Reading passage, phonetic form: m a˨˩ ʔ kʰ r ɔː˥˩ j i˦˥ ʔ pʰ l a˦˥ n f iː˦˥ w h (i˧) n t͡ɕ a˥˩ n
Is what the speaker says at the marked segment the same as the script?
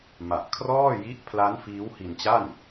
yes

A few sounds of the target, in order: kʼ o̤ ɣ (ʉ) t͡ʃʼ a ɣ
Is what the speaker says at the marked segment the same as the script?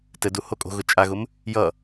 no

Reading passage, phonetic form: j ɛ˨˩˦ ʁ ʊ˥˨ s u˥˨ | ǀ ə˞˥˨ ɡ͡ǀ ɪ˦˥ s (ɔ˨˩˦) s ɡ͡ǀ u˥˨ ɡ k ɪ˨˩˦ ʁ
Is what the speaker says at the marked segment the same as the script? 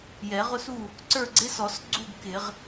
yes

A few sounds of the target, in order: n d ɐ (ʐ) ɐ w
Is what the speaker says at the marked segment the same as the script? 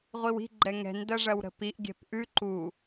yes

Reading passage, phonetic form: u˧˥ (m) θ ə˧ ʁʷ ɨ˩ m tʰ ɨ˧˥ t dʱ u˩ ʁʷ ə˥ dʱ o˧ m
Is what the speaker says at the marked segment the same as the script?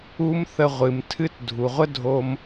yes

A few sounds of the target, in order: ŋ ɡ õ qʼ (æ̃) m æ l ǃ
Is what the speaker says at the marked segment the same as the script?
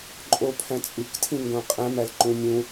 yes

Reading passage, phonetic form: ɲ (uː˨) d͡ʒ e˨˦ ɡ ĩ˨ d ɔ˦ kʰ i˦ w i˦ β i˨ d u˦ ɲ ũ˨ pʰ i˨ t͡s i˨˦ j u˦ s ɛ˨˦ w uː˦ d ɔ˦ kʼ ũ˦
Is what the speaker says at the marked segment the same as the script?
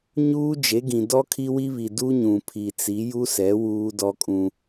no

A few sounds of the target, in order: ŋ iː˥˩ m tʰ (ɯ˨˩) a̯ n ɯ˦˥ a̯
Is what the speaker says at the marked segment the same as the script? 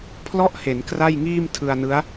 no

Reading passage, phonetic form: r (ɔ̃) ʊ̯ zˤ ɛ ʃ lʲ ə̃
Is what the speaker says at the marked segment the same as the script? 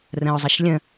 no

